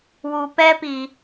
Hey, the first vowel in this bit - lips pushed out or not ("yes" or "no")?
yes